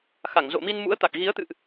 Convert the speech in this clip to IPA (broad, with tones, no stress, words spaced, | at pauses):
xa˧˩ŋzo̰˧˨mi˧nmṵ˧˥ə̯ t̪a˨˩k̚ɣi˨˦ə̯t̪ɨ̰˧˨ʔ